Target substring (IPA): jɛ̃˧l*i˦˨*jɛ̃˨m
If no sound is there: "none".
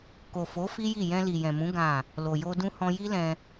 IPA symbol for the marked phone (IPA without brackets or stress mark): i˨